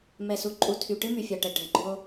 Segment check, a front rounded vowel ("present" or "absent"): present